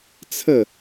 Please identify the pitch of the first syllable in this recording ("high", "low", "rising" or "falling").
falling